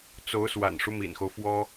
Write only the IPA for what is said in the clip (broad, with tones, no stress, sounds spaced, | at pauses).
t͡s o˧˥ ʊ̯ s w a̰˨˩ n ʂ u˦ m ḭ˨˩ n x o˦ ʊ̯ f w ɔ˥